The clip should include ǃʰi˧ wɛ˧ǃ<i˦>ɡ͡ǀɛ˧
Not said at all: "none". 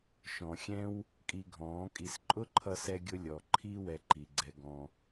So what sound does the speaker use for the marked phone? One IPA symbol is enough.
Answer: i˨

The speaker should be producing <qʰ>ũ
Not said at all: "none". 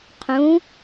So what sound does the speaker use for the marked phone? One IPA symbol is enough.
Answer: qʰ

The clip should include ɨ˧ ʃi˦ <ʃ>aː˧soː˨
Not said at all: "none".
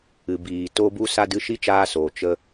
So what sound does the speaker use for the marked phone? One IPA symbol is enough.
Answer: t͡ʃ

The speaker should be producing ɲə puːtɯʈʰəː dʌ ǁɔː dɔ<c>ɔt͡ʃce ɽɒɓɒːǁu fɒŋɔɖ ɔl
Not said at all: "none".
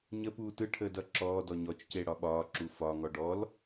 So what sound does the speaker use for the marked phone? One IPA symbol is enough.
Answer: ɲ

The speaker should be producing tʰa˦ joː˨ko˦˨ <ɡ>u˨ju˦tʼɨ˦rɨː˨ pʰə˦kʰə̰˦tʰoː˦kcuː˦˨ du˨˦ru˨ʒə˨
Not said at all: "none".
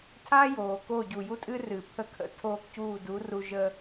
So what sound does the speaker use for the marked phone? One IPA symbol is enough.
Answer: ɟ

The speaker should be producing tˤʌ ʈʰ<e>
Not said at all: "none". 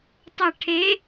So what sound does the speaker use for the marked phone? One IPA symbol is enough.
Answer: e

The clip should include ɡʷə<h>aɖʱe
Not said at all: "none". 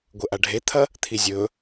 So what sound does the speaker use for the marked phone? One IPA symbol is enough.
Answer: ʔ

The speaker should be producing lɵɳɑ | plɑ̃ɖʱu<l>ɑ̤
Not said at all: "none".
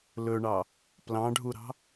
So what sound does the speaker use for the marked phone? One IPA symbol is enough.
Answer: ɾ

